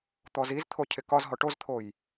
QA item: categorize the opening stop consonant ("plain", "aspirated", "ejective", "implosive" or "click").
plain